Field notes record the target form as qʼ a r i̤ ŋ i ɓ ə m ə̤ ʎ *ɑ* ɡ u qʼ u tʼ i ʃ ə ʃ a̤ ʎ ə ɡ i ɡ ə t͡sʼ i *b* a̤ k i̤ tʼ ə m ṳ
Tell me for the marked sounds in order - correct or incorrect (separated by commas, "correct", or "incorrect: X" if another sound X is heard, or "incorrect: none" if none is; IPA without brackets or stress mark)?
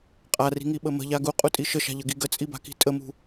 incorrect: a, correct